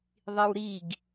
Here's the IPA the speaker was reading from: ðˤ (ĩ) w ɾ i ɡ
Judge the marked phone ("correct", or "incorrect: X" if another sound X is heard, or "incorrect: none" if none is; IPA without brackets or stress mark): incorrect: i